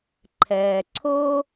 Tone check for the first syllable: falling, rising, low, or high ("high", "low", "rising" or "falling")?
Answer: low